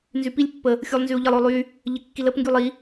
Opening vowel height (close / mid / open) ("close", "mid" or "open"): close